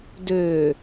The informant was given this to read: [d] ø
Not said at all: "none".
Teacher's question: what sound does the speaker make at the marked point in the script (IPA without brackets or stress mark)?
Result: d